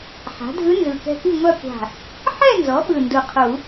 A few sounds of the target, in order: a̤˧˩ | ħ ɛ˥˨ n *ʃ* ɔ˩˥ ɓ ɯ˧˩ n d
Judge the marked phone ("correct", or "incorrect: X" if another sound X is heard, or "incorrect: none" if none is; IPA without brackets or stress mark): incorrect: z